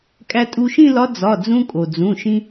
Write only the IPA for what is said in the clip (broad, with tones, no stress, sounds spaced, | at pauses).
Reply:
kʼ æ˧ tʼ u˧ ʃ ĩ˥˧ l ɒ˧˥ d͡z ɒ˩˧˩ d͡z ũ˧ kʼ o˩ d͡z ũ˩˧˩ ʃ ĩ˧